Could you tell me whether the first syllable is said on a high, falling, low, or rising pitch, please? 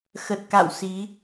low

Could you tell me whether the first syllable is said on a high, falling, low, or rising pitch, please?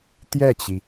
falling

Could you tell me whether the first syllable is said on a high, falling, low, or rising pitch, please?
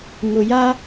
low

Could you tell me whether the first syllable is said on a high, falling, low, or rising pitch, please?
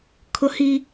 high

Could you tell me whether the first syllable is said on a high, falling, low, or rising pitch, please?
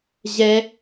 high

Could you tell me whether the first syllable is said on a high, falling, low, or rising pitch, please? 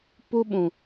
high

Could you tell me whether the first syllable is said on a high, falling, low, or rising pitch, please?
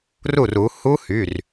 falling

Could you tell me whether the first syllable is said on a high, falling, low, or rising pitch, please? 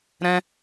high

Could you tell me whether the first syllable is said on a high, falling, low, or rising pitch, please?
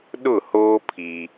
falling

